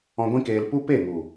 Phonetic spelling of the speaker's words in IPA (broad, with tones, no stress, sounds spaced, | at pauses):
ɔ̃˧ ɡʷ ĩ˦ k eː˧ l p u˦ p e˦˨ ŋ u˨